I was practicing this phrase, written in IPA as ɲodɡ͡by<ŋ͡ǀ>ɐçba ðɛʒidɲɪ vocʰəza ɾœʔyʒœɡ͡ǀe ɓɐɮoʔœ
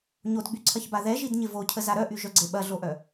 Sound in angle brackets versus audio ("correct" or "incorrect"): incorrect